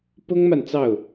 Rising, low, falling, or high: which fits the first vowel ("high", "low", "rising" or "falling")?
high